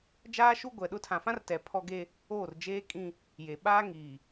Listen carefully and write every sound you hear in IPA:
d͡ʒaː˦ʃu˦ ɡʷɛ˨ɗʊ˦ tʰã˨fã˦rtɛ˨ pʰɔ˦ɡe˦ | oː˦˨rd͡ʒeː˦kʼĩ˦ | je˨ɓaː˦ ŋiː˨

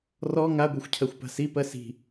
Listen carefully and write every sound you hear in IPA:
rɔ ŋaɡʷɛxʷcʰɜxʷ pa̤sipɜ si̤

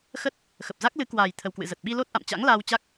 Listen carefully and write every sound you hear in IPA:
xə˦˥t̚ | xə˨˩p̚za˦˥k̚ lɨ˨˦ kwaː˨˩j t̪ʰə˨˩wkwɨ̰˧˨zə˨˩t̚ ɓi˧lo˦˥t̚ʔa̰˧˨mt͡ɕa̰˧˥ŋ laː˧wt͡ɕa˦˥k̚

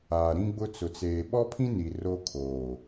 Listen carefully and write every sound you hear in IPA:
aː˨ɾĩ˦ɡ͡bʊ˦ t͡sʊ˨t͡seː˨ ɓɔ˦pʰĩ˦ ni˨ro˦ kʰoː˨

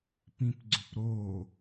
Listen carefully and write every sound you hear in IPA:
pĩpɡ͡ǀʏpɾoː

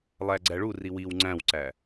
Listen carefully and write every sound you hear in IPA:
lˠæɡ͡ǀæɭu riwiw ŋ͡ǀæ̃wǀæ

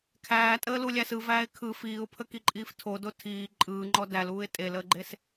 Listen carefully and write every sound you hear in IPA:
kʰæːtʼəːlulʲæs ɯvæːɪ̯ kʰɯ fiːʊ̯pʰəkiǃʼiːf tʰodo tʰiː ǃʼɯːŋ͡ǃɔ dæluːɪ̯ tʼeləːɡ͡ǃes

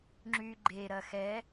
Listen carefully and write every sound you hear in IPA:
ŋ͡ǁy ɡ͡ǃeɾɐ xɛ

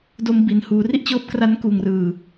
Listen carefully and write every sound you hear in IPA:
do˧mbi˨˩n huː˩˦ri˥˩ʔ t͡ɕɤː˦˥p̚kra˦˥nkuː˨˩ŋrɯː˨˩

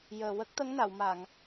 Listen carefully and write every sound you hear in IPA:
jəː˨˩wə˦˥k̚ t̪ə˧˥ŋ na˨˩˨wma˨˩˨ŋ

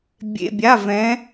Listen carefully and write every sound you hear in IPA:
bʲḛ˧˥˧bʲa˧˥˧vɛ̃˧˥

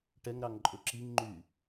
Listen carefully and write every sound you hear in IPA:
ʈɛŋɾɑŋ ǃʼɵǁiŋŋ͡ǃy

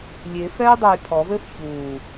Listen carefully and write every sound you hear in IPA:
lʲefɛj dˤej pʰɔvɘːf çuː

